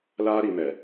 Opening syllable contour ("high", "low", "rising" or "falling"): high